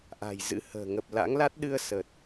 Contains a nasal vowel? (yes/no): no